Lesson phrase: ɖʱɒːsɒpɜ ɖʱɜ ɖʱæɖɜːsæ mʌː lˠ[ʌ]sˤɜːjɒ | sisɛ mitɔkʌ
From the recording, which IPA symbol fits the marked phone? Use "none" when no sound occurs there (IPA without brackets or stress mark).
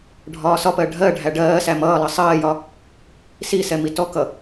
ʌ